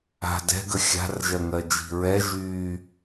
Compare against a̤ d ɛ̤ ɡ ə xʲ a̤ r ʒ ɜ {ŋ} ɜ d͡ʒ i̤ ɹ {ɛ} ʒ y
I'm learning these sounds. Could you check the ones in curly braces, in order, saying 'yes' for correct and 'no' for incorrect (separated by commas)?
yes, yes